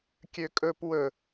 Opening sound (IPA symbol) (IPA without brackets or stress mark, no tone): kʲ